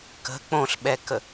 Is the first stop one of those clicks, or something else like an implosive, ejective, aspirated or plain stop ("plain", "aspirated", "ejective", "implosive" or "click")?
plain